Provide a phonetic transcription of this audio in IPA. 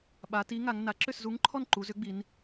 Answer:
ɓ a˩˧ t i˨˥ ŋ a˩˧ ŋ n a˩˧ ǁ ʏ˥˩ s z u˨˥ ŋ ǃʰ ɔ˥˩ n ǃ u˩˧ z ʏ˨˥ ɡ͡b i˩˧ n

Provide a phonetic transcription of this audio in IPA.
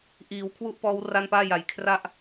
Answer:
ʔ iː˩˦ w kʰ w u˥˩ ʔ p ɔː˦˥ w r a˥˩ n p aː˥˩ j a˩˦ j kʰ r a˥˩ ʔ

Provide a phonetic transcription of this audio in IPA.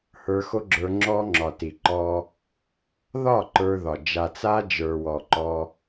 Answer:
h ə˞˧ x o˦ ɡ͡ǁ ə˞˧ ŋ͡ǁ ɔ˦ ŋ͡ǁ ɒ˨ t i˨ ǃ ɔ˧ | ð ɒ˦˨ ǃ ə˞˧ ð ɒ˨ d͡ʒ a˨ t͡s a˦ d͡ʒ ə˞˨ w ɔ˨ ǃ ɔ˧

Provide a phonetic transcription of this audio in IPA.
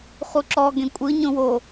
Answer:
χ u ǁ ɔ ɡ ẽ kʷʼ ɯ ɲ õ w o

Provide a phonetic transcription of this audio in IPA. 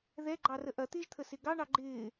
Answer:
ð ɛ ɡ͡ǃ ɑ r ə ʔ ɐ t̪ ɪː ʒ t̪ʰ ə s ɪ ɡ ɑ ɳ ɑ ɡ͡ǃ ɪː

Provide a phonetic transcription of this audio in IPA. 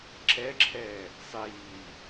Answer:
ǁ ɛ ǁʰ ɛː | sˤ iː

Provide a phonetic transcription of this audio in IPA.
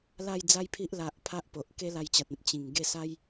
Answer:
l a˥˧ j d͡z a˦ j pʰ i˦ ʔ l a˨ ʔ pʰ a˦ ʔ p o˨ ʔ k e˦ l a˧ j t͡ɕ a˨ t̚ ẽ˨ p̚ t͡ɕ ĩ˨˩ ŋ ɡ e˥˧ s a˦ j

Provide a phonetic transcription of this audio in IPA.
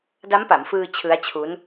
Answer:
d a˦˥ m p a˩˦ m f ɯː˧ t͡ɕʰ ɯ˦˥ a̯ t͡ɕʰ u˦˥ n

